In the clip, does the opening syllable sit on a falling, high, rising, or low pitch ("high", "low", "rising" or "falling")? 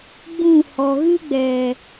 falling